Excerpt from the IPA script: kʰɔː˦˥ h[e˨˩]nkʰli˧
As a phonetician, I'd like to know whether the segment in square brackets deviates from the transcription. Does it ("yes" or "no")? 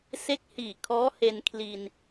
yes